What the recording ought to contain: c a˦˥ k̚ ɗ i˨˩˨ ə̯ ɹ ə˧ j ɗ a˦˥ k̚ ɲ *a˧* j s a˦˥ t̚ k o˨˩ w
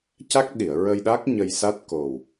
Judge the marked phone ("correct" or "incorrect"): incorrect